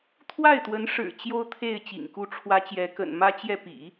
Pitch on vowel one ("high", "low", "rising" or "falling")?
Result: falling